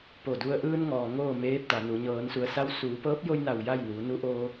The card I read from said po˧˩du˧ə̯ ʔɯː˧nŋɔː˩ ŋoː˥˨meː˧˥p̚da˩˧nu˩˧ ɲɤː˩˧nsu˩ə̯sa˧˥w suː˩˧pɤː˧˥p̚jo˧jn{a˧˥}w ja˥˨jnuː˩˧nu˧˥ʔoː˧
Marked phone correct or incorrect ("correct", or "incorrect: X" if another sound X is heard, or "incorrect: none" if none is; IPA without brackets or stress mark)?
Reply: incorrect: a˧˩